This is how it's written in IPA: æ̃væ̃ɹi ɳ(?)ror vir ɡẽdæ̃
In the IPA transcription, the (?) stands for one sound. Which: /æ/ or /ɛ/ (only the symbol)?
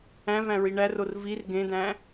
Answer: æ